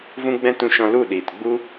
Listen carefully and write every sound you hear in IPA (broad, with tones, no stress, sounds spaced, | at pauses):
v ũ˦ ɡ͡b ɛ̃˦ t ũ˧ ʃ ɔ̃˧ l u˦˨ ɗ iː˨ t ɡ͡b u˦